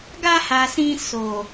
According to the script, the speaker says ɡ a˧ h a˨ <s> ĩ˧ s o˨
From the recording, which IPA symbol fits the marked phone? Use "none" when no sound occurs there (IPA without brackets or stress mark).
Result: s